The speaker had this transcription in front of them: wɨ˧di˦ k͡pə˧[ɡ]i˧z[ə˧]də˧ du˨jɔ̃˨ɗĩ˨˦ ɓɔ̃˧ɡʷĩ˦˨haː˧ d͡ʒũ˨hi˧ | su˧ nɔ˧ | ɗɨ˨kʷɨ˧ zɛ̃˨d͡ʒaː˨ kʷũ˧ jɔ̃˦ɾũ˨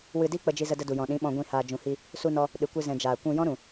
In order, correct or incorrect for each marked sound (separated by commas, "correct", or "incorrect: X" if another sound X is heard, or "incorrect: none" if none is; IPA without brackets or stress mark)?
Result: incorrect: d͡ʒ, correct